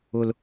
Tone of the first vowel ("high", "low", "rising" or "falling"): high